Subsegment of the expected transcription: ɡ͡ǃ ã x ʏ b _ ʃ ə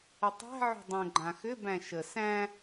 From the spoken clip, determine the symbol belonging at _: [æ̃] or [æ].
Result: æ̃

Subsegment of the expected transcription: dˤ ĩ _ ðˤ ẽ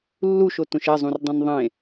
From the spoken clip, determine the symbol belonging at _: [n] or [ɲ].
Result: n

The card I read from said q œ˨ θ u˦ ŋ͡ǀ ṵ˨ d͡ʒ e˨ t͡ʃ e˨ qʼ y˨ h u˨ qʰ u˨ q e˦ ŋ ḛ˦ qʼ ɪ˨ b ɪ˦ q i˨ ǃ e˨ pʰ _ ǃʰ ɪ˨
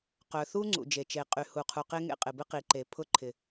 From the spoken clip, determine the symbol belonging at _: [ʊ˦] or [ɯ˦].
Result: ʊ˦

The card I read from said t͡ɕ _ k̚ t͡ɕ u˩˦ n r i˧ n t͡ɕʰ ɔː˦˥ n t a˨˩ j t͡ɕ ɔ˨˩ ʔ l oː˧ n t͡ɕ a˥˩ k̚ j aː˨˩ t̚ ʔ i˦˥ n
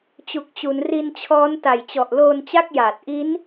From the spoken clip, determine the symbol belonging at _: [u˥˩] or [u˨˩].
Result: u˨˩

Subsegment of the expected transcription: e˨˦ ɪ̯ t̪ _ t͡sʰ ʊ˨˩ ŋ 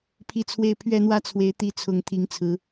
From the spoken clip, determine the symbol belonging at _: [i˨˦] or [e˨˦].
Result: i˨˦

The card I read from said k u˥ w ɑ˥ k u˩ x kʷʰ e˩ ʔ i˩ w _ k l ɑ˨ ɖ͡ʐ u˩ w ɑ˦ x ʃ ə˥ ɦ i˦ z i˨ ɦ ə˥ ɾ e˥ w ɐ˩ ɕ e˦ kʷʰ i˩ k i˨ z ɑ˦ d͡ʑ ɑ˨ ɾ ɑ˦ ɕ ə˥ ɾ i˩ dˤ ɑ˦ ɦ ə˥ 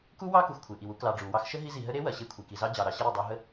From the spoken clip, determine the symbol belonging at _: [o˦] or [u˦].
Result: u˦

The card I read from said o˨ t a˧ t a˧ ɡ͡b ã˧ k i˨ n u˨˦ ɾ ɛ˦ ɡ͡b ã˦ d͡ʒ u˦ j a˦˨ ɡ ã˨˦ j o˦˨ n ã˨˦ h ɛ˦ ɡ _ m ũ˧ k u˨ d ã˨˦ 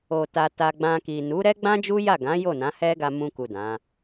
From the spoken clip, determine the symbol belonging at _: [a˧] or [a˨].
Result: a˧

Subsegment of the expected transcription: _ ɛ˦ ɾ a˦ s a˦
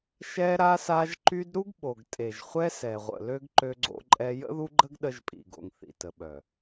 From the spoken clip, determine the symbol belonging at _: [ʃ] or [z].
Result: ʃ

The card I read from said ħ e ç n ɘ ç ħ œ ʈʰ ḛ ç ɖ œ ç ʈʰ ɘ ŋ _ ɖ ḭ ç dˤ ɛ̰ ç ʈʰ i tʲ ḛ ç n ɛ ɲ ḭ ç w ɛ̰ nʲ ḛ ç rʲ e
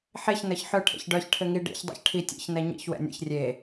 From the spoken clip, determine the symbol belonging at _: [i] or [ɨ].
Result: i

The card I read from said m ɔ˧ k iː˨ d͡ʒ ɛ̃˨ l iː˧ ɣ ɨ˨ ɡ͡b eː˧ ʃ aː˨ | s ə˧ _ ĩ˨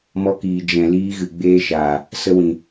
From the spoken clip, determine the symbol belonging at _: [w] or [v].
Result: w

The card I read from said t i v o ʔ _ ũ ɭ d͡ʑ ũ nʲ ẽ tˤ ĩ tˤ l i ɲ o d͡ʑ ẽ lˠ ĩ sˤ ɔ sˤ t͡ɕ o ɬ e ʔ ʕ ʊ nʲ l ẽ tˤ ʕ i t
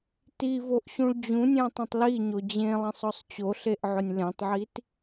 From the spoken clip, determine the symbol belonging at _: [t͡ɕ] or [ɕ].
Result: ɕ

